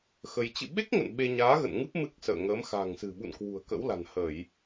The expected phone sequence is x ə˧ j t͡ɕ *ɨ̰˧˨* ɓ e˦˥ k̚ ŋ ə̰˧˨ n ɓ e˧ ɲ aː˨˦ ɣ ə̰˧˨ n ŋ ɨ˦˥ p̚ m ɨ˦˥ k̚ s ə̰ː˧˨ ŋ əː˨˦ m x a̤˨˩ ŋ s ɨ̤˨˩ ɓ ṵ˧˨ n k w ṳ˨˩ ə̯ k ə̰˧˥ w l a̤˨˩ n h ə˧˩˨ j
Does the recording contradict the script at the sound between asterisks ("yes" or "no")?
no